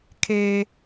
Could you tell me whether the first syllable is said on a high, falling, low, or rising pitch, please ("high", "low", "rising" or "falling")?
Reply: high